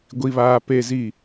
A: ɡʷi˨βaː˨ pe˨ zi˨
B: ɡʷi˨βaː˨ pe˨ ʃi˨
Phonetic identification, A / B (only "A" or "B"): A